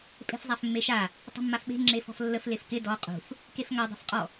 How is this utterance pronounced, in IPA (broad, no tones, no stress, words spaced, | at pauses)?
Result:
pʼe̤fzˤafmːeʃa | tˤə̤mːafɓe̤ ŋ͡ǁefɔ̤flːəf lefkɪ dɔ qʼṳf | kefŋa dˤe̤fqʼɔ